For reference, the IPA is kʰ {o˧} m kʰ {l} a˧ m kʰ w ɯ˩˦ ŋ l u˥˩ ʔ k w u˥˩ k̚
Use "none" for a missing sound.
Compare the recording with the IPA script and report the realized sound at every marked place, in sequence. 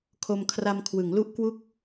o˧, r

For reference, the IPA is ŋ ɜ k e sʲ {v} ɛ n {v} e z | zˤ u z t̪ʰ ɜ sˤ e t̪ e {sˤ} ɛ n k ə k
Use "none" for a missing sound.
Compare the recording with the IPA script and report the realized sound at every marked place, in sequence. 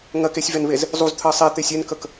v, β, sʲ

